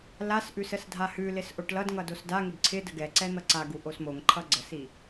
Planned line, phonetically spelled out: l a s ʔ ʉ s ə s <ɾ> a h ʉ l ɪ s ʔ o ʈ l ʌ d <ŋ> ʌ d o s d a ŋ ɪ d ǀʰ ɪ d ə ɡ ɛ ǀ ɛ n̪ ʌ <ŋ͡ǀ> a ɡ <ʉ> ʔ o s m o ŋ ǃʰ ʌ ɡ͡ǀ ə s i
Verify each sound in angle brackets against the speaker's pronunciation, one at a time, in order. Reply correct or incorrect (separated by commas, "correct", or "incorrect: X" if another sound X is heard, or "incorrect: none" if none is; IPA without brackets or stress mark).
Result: incorrect: dʱ, correct, incorrect: ǀ, incorrect: u